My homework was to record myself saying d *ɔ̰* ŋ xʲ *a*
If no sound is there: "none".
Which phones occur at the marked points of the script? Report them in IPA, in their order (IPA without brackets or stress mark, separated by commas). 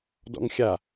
ɔ̰, a